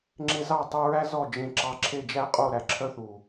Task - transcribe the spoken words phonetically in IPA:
ŋ͡ǁe˧zɑ˦˨ tˤʉ˧ɹæ˦ zɔ˦˨ d͡ʒẽ˧ǁɑ˧ ǁʰe˦˨d͡ʒæ˦qʼo˦˨ ɾæ˨ǁʰœ˦θu˨

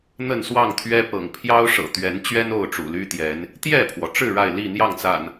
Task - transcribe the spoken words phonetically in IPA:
n̪ə˥˨nswɑ˥˨ŋt̪ʰɥɛ˦ pɤ̰˨˩ŋ pʰjɑ˦ʊ̯ʂɤ̰˨˩ t̪ɥɛ˨˦nt͡ɕɥɛ˦n o˥˨ʊ̯ʈ͡ʂṵ˨˩ly˦t̪jɛ˨˦n | t̪jɛ˥˨pʰwɔ˩ʈ͡ʂɻ̩˥˨ ɻa˥˨ɪ̯li˥˨n̪jɑ˥˨ŋt͡sa̰˨˩n

